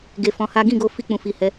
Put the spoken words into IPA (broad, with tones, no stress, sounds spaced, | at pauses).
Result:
ɡ e˧ f ɔ̃˧ h a˦ ɡ ĩ˦˨ ɡ o˧ f i˦ k͡p ũ˧ f i˧ h ɛ˧